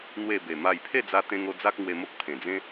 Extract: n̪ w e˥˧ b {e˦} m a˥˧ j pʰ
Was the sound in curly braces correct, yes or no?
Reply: no